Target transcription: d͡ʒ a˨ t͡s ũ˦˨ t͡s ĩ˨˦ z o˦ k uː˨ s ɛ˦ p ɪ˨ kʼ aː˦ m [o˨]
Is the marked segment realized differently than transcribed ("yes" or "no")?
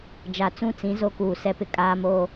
yes